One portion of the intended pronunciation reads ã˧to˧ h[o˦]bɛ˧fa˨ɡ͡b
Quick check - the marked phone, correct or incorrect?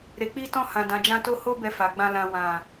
correct